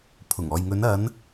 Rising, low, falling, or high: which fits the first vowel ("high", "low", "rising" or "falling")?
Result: low